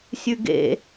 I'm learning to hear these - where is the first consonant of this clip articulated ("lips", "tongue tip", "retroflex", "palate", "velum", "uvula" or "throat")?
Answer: tongue tip